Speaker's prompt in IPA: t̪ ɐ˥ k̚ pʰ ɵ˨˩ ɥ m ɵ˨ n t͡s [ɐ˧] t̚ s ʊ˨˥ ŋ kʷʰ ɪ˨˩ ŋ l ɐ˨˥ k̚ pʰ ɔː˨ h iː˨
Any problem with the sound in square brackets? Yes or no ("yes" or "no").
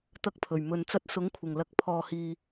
yes